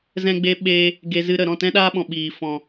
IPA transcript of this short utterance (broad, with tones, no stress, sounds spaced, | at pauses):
z ɛ̃˦ ɡ͡b e˦ ɓ e˧ | ɡ e˧ z ɨ˧ ɾ ə˨ ɾ ɔ̃˦˨ t ɛ̃˦ ɗ aː˦ ɓ ɔ̃˨ ɓ iː˨ f ɔ̃˨